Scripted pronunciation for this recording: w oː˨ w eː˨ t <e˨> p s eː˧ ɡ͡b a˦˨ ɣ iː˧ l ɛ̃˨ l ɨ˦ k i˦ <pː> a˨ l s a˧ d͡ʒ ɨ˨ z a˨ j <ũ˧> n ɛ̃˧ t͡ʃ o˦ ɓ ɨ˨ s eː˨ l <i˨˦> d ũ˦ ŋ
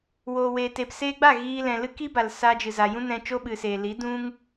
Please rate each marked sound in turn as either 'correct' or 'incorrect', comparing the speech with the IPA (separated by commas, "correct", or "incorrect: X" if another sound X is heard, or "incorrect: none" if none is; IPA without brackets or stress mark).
correct, incorrect: b, incorrect: ũ˦, correct